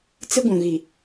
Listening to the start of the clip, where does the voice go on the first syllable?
high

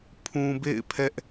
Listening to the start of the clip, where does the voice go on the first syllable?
low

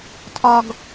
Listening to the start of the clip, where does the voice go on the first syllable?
low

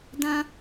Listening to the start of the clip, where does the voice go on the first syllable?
high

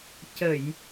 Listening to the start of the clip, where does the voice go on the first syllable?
low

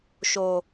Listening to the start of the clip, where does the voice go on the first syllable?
low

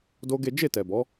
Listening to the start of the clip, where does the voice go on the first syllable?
high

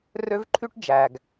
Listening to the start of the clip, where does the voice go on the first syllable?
high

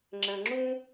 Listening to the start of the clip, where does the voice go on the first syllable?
low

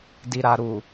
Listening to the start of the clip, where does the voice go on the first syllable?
low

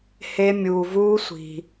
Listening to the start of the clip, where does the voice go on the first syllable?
high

